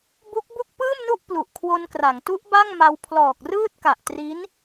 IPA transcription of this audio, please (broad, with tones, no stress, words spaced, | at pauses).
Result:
bu˦˥k̚bu˥˩k̚ pɯː˥˩mnu˥˩ʔ plu˨˩ʔkʰwo˧nkra˩˦ŋtu˦˥ʔ ba˥˩ŋma˧w pʰlɔː˨˩k̚rɯː˥˩t̚ka˨˩ʔ tri˦˥n